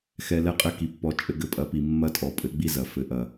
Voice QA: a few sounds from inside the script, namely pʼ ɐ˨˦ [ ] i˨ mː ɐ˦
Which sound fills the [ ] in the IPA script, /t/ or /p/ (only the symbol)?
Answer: p